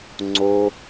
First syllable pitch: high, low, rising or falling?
high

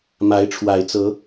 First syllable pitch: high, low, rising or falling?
rising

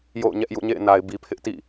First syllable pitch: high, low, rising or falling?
falling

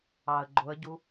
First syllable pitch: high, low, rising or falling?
low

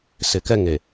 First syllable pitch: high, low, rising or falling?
low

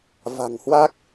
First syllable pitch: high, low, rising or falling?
low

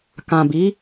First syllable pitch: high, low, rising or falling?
low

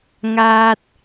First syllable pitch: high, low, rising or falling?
low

